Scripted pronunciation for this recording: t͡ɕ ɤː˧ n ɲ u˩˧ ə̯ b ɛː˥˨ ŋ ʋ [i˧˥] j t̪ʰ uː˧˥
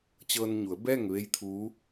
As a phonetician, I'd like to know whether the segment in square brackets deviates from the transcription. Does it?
yes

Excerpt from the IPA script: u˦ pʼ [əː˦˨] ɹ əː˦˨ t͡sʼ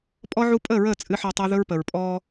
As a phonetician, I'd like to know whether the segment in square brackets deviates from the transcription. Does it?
no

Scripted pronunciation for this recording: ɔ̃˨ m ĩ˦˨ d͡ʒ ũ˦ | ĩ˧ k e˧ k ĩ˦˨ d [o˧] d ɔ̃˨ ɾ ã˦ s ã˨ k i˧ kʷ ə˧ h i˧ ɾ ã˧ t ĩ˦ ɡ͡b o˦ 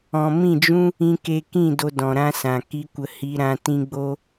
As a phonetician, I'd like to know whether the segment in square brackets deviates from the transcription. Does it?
no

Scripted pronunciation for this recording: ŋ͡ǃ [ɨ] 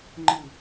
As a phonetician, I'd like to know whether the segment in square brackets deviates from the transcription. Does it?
no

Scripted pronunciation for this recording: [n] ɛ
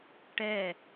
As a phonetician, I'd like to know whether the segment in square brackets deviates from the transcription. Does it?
yes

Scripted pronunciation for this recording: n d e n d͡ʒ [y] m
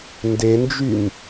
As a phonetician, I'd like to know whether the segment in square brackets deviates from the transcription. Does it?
no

